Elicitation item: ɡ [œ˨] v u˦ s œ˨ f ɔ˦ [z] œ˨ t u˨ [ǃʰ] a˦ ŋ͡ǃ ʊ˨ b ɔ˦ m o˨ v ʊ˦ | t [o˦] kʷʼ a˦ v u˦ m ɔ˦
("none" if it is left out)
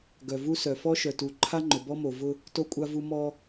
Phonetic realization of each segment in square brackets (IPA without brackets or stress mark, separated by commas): œ˨, ʃ, ǃʰ, o˦